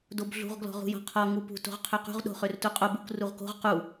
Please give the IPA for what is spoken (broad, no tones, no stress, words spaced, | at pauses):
dobɮṳʁ ɡlɔ̤ʁṳjɔ̤qʰɔ ŋupṳ to̤ʁqʰøqṳʁ ɗo̤χørtuqʼob uk ruʁko̤ʁ qu